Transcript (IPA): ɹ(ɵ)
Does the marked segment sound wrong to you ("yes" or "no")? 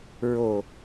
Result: yes